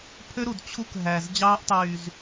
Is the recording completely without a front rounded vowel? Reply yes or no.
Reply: no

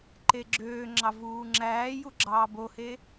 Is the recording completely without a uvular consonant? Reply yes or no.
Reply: yes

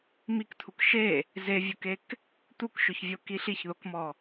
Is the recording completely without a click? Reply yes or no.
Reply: yes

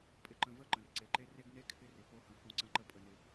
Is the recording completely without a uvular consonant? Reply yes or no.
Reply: yes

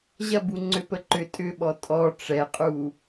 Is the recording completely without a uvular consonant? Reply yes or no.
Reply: no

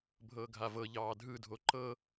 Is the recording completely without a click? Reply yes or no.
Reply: no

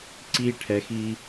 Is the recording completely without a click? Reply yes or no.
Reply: no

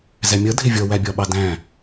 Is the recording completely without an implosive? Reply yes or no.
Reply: no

